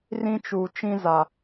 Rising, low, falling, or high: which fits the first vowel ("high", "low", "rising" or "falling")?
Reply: high